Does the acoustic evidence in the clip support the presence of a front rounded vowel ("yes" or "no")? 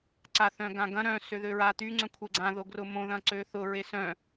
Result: yes